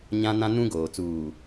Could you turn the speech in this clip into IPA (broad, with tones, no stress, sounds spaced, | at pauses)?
ɲ ã˦ n ã˦ n ũ˦ ɡ oː˨ t͡s uː˨